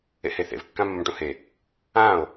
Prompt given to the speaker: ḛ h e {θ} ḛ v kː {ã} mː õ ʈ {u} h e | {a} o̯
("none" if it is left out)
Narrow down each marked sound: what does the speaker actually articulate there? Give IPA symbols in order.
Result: θ, ã, ũ, ã

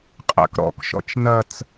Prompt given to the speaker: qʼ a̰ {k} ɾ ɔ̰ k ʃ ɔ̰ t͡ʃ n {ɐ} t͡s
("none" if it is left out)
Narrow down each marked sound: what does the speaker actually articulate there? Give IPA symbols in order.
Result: k, ɐ

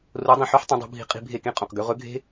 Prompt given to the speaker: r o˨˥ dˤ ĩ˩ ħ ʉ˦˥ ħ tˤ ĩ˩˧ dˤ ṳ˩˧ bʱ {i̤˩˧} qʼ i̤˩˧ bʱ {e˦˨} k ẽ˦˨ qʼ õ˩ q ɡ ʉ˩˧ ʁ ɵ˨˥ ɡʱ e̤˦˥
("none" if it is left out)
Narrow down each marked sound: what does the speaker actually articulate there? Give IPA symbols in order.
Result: i̤˨˥, e˦˨

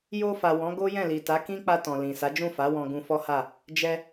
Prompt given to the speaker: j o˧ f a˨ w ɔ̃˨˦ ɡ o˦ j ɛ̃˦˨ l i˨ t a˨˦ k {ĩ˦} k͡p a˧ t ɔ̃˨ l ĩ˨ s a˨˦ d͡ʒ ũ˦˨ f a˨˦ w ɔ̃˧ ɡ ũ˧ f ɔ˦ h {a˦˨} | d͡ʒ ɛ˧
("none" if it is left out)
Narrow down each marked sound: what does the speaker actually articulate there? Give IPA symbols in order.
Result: ĩ˦, a˦˨

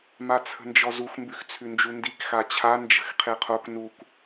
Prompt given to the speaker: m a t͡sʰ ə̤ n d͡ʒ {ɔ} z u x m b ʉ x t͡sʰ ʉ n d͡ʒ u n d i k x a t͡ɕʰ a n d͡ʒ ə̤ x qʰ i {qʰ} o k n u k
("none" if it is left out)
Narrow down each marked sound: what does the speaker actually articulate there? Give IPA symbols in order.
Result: ɔ, qʰ

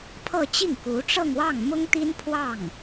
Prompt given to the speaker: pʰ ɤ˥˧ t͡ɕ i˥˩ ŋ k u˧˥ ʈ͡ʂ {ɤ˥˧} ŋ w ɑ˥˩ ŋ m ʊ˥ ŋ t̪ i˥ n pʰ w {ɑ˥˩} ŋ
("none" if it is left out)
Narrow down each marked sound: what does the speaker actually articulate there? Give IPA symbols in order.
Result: ɤ˥˧, ɑ˥˩

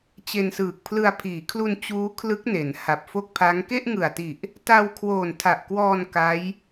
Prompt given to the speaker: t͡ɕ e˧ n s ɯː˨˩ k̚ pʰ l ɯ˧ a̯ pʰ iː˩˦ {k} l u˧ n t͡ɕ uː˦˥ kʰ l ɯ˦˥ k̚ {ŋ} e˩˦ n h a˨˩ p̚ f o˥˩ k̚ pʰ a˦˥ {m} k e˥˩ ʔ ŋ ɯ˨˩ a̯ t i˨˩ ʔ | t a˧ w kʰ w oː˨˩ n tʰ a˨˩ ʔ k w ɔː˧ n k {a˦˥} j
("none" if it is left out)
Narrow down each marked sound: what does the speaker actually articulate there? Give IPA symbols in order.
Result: kʰ, n, ŋ, a˦˥

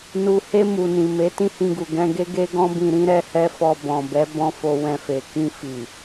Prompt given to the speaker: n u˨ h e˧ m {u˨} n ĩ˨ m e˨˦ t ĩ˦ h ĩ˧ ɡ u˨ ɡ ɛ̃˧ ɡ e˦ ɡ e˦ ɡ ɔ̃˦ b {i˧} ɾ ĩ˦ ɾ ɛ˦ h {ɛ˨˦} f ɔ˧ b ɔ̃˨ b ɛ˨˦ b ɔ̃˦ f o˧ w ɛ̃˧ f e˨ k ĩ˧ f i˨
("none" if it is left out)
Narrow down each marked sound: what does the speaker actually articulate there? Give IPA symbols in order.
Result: u˨, ĩ˧, ɛ˦

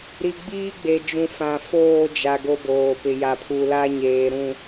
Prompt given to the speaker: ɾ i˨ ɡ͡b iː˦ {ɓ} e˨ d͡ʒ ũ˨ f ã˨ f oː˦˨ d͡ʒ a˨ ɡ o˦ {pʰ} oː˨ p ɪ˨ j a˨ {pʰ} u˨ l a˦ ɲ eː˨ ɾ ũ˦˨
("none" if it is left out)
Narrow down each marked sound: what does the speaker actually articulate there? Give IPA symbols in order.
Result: ɡ͡b, b, pʰ

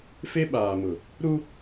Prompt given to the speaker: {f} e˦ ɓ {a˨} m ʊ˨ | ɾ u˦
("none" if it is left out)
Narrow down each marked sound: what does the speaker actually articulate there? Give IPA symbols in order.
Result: f, aː˨

